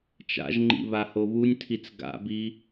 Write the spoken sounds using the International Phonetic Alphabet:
t͡ʃa̰ʒŋ͡ǃḭ βahoβunʲtʰit͡s ɡa̰bi

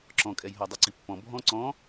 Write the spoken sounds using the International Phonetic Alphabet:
ǁɔ̃kʼɛj ɦɔdˤɯǀipːɔ̃ bʱɔ̃ ǀɔ̃

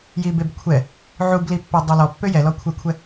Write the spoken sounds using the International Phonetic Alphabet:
jibebkʷʰɛ | ʕublipːø dˤølɔpːø jɛlɔkʷʰɛkʷʰɛ

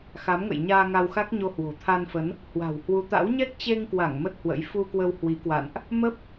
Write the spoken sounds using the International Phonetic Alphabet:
xa˨˦mŋə̰˧˨jɲaː˧ ŋa˧wxa˦˥k̚ɲo˧ hwo̤˨˩t̪ʰa˧nfə˨˦n | hwa̤˨˩whwu˨˦t̪a̰˧˥w ɲɛ˦˥k̚t͡ɕe˧ŋkwa˧˩ŋ mə˦˥t̚hwə̰˧˥j fu˧kwə˧w hwi˨˦kwa̰˧˨nʔ | mə˦˥p̚

